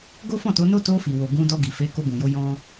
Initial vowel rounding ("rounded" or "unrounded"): rounded